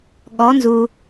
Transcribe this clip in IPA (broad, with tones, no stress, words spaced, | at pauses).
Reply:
ɠɔ˩˧nzu˩